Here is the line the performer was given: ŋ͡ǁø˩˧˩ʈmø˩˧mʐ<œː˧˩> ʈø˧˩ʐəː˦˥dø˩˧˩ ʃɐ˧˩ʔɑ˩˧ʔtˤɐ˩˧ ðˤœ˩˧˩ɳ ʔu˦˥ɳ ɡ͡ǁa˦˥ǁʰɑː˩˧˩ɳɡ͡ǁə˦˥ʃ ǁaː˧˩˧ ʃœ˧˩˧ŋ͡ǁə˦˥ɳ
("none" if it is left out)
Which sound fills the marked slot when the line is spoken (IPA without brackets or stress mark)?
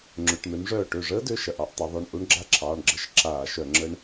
œː˧˩